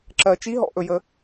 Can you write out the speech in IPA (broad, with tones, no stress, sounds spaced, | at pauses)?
ǁ ɜ˨˦ t͡ʃ i˧˥˧ ɦ ɔ̰˨˦ ʔ ɵ˨˦ j ə˨˦